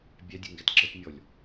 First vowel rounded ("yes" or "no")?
no